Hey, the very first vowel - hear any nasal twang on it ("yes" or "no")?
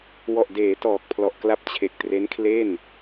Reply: no